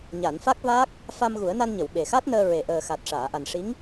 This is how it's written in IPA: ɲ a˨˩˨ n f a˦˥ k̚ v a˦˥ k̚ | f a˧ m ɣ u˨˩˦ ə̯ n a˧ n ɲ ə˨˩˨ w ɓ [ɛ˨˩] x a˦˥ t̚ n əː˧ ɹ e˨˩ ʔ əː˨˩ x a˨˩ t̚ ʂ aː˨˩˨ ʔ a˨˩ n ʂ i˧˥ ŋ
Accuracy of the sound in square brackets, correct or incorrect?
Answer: incorrect